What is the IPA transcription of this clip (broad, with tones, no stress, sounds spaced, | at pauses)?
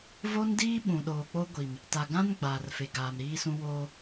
v o˦ n d iː˦ ɓ ũ˨ ɗ oː˨ k͡p o˦ ɡʷ i˨ m | t a˨ ɡ ã˦ n ɡ͡b aː˨ r f e˨ ɡ aː˨ m ɾ iː˦ s ũ˦ w oː˦